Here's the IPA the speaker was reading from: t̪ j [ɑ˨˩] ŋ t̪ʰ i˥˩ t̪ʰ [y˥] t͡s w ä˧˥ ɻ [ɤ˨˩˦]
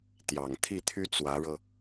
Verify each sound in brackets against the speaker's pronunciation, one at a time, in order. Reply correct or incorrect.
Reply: correct, correct, incorrect: ɤ˧

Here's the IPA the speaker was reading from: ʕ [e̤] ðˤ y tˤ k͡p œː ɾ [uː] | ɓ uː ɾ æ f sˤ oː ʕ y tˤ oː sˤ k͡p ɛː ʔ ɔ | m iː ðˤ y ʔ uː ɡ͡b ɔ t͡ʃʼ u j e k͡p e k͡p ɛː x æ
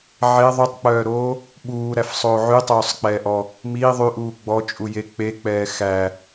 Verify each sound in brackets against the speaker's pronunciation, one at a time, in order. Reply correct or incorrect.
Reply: incorrect: e, incorrect: oː

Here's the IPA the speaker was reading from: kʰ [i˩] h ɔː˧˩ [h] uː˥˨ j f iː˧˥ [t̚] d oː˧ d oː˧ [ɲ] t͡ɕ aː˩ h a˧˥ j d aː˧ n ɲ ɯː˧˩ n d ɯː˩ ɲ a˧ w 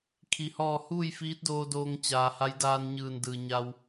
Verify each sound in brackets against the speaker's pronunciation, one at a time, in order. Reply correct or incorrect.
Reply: correct, correct, correct, incorrect: ŋ

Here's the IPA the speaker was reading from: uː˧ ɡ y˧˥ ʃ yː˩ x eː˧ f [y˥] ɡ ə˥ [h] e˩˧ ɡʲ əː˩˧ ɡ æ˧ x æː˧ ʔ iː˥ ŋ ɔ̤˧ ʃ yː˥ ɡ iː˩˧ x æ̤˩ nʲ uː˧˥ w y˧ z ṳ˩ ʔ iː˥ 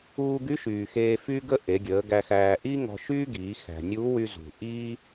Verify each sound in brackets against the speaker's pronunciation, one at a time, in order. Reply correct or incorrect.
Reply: correct, incorrect: ʔ

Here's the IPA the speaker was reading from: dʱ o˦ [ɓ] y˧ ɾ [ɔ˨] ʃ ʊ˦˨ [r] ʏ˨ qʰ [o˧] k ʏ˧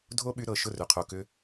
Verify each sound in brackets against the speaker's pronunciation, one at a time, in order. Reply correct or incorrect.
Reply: correct, incorrect: ɤ˨, correct, incorrect: o˨

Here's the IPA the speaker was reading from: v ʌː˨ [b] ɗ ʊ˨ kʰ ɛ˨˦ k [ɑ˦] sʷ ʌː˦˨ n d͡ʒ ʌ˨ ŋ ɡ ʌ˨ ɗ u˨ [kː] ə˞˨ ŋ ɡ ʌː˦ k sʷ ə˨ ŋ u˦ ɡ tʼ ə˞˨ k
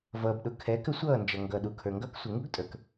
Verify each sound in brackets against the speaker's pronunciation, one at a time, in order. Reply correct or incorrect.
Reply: correct, incorrect: ə˦, incorrect: kʰ

